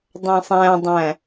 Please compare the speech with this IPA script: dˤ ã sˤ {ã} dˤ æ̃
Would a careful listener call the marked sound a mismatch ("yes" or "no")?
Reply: yes